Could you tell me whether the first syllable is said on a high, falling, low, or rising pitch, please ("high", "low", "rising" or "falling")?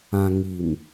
low